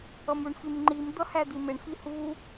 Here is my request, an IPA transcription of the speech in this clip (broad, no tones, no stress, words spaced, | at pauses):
ʌmuɳfimŋ͡ǃim d̪ʌhæd̪imɪɳ fihu